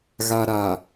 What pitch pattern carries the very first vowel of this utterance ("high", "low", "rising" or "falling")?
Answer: low